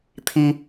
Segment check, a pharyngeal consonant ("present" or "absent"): absent